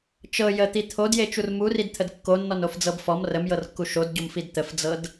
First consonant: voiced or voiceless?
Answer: voiceless